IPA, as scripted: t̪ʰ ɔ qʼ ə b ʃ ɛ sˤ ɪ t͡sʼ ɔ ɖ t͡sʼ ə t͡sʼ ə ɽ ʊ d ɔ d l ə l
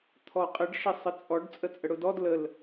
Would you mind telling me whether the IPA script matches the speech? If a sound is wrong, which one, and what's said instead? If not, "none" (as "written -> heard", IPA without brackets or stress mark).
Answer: b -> ɖ